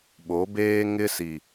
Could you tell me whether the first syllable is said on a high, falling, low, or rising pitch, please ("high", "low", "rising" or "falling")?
rising